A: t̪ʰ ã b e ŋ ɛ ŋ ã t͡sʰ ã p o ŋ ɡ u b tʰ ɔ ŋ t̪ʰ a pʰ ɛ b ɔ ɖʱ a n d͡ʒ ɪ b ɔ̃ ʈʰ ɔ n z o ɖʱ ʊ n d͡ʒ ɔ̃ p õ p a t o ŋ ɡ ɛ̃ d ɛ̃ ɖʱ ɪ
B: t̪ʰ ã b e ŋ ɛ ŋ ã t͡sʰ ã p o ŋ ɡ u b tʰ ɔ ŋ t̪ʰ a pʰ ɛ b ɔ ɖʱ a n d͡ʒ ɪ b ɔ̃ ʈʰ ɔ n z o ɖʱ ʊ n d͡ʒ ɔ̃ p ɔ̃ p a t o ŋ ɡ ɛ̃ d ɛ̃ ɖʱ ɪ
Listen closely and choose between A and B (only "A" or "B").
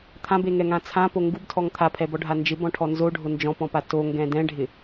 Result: B